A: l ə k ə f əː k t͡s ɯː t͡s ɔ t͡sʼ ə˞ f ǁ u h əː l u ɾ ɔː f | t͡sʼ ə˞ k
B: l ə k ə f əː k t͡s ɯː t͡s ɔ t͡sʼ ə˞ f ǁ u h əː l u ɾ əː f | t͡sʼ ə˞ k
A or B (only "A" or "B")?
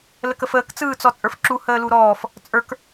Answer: A